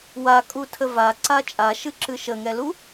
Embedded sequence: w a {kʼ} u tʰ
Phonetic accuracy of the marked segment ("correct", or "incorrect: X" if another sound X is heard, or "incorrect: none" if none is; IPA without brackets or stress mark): correct